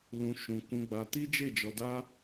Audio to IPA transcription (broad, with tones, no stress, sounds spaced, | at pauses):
l ũ˧ ʃ ũ˨ k ũ˧ ɡ͡b a˧ t i˦ d͡ʒ e˦˨ d͡ʒ ɔ˧ d a˦